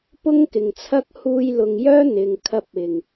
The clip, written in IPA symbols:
p ʊ˥ ŋ k ɪ˨˩ ŋ t͡sʰ ɐ˥ k̚ h uː˧ j l ʊ˨ ŋ j œː˥ n̪ ɪ˨ ŋ kʰ ɐ˧ p̚ ɪ˨˩ ŋ

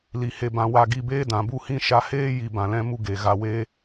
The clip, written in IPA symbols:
l i˧ h e˧ b ã˧ w a˦˨ ɡ i˦˨ b eː˦ d ã˨ b u˦ h ĩ˦ ʃ a˧ h eː˦ j i˨ b ã˨ l ɛ̃˦ m u˦ ɡ e˨ ɣ a˨ w e˦

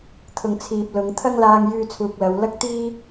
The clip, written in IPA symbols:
t̪ʰ ʊ˨ ŋ t͡sʰ iː˨ p̚ l ʊ˨˧ ŋ t̪ʰ ɐ˥ ŋ l aː˧ ŋ j yː˧ t͡sʰ uː˨ k̚ l ɐ˨˧ w l ɐ˥ k̚ t̪ iː˥

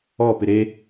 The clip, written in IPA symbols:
ɔ p ɪ ɾ e

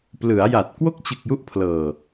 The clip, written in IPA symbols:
p l ɯ˩˦ a̯ j a˨˩ t̚ k w o˥˩ k̚ t͡ɕ ɯ˨˩ k̚ j u˦˥ ʔ pʰ l ɤː˨˩

